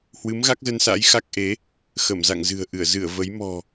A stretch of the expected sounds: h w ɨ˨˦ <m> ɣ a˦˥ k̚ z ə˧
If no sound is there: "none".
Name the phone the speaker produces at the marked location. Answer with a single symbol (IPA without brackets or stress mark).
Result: m